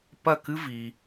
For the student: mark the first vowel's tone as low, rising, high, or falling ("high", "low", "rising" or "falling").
falling